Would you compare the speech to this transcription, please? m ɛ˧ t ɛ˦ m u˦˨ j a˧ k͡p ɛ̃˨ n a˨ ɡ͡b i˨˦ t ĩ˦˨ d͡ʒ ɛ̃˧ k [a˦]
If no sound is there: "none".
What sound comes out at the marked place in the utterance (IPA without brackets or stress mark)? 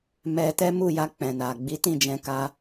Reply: a˦